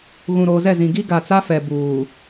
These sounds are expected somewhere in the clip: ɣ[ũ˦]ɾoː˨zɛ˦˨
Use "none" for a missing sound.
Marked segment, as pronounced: ũ˨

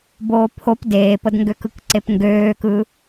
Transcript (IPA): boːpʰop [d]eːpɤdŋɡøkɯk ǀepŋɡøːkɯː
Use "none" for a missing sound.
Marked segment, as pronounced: d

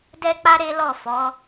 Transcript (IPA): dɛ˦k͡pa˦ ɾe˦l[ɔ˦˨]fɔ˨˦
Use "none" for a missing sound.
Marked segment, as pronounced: ɔ˦˨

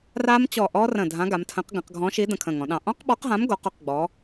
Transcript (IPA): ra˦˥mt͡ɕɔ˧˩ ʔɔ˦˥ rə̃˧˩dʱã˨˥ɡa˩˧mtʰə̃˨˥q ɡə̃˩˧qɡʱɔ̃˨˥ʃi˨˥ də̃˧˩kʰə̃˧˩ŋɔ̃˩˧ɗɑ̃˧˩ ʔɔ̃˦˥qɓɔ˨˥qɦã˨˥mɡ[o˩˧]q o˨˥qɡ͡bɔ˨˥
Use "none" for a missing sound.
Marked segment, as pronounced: o˩˧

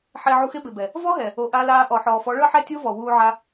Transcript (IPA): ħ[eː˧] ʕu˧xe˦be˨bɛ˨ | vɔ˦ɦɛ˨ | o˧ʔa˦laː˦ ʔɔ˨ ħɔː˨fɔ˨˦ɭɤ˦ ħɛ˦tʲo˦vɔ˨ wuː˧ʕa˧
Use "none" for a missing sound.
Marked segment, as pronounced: e˧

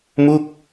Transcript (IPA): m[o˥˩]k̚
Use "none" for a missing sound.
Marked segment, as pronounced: u˥˩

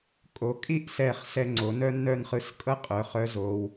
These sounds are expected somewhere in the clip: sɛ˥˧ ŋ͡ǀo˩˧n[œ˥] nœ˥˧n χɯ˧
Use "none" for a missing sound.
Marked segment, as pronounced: œ˥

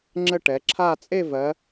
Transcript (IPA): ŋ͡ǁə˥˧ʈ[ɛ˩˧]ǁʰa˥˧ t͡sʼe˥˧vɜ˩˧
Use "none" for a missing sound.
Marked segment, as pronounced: ɛ˩˧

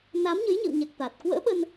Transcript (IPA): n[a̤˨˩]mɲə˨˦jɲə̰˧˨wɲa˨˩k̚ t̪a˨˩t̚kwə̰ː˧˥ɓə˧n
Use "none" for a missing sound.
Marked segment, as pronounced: a˨˦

